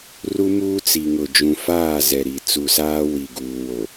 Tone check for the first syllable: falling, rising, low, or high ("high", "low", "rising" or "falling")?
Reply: high